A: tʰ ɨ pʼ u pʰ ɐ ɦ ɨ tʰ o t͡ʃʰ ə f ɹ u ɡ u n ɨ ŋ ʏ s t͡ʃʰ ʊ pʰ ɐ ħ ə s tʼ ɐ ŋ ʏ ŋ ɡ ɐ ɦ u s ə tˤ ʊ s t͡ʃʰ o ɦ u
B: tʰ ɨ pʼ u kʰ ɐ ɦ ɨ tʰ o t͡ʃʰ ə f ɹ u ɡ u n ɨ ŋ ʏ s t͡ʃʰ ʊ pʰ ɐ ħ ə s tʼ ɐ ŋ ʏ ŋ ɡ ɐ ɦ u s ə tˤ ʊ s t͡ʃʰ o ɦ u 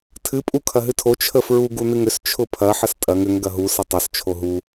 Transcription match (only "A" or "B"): B